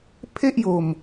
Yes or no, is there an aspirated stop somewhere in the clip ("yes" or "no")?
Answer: yes